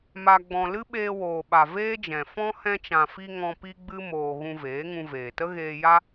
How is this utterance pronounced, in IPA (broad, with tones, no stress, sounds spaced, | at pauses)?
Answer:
m a˧ ɡ͡b ɔ̃˧ l ɨ˦ ɓ eː˧ w oː˨ ɓ a˨ v eː˦ d͡ʒ ɛ̃˨ f ɔ̃˧ h ɛ̃˧ t͡ʃ ã˨ f i˧ ŋ ɔ̃˧ p i˦ ɡ͡b ɨ˦ m oː˧ ɣ ũ˧ v eː˨˦ ŋ ũ˧ v eː˨ t ə˦ ɣ eː˧ j a˦